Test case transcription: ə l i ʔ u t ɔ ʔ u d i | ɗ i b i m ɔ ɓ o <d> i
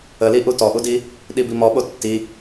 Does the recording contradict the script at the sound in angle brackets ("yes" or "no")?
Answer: yes